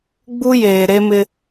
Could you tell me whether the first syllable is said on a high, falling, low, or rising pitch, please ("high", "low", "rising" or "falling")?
high